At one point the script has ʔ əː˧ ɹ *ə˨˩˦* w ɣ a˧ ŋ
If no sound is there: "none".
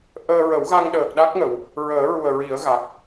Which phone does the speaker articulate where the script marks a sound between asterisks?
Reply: ə˨˩˦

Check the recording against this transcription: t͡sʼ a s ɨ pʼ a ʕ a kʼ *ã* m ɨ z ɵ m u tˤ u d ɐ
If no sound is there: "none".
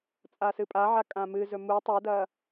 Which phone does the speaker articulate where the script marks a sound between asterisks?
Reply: ã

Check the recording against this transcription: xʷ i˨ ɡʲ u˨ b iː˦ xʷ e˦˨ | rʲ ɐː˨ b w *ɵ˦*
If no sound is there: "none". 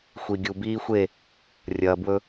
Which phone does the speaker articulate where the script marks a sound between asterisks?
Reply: ɵ˦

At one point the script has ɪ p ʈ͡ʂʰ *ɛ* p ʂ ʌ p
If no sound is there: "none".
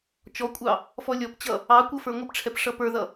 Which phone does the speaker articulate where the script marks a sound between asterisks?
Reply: ɛ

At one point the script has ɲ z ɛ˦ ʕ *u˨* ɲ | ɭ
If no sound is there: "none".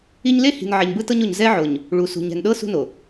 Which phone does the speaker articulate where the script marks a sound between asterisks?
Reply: o˨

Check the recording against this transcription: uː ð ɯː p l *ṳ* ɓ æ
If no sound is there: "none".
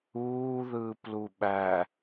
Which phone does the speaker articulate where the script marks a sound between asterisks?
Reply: u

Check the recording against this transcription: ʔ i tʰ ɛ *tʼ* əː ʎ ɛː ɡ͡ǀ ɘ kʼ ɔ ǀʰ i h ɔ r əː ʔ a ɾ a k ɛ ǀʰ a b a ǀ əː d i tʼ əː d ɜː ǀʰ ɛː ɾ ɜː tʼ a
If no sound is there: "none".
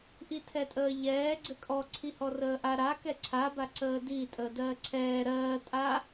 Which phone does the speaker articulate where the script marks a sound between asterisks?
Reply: tʼ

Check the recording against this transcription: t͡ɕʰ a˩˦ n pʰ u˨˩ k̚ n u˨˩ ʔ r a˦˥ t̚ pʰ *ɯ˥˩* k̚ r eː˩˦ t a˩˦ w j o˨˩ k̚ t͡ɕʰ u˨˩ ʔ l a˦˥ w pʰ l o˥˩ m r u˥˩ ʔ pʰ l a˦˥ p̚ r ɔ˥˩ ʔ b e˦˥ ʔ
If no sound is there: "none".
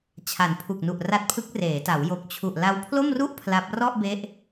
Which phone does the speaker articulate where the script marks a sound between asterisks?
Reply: ɯ˦˥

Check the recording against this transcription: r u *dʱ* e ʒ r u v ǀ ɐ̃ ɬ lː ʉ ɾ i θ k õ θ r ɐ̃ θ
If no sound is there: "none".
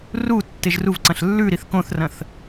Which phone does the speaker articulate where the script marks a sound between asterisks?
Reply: tː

